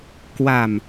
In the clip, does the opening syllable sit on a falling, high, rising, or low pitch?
low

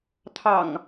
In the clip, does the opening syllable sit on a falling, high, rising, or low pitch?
low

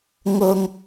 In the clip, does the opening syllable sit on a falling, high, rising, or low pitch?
low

